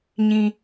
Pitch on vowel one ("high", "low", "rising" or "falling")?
low